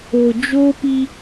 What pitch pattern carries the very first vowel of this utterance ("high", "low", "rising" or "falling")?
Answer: low